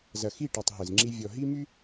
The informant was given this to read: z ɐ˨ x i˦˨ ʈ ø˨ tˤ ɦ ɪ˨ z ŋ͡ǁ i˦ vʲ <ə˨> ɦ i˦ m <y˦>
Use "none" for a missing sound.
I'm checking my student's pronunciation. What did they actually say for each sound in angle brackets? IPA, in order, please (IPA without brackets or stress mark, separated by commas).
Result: ɔ˨, y˦